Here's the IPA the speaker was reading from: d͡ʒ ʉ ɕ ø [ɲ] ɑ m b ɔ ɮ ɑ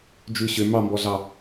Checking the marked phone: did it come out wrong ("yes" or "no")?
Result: yes